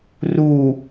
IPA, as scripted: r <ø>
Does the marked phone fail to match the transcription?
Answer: yes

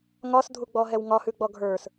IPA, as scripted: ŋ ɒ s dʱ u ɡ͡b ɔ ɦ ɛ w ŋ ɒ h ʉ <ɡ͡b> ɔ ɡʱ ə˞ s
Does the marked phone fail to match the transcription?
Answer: no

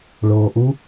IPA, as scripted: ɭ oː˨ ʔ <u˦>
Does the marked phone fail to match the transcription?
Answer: no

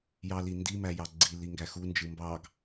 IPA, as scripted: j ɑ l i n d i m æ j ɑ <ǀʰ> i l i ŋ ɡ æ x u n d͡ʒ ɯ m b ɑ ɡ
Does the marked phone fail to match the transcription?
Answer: yes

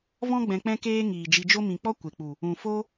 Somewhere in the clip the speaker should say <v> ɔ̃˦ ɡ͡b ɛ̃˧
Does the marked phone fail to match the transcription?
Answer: no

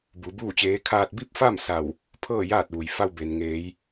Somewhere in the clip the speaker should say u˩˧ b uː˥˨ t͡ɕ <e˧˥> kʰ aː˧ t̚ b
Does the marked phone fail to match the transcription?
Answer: yes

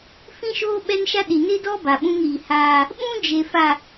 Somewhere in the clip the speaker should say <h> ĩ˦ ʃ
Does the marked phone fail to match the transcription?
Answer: yes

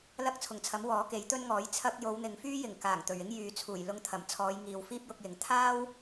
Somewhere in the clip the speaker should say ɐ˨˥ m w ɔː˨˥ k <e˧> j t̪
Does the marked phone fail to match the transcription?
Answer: yes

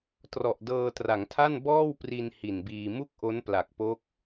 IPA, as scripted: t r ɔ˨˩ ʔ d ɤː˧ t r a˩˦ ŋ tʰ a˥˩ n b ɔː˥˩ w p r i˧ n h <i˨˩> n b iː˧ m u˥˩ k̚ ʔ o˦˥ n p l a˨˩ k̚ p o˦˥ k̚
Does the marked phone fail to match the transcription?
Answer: no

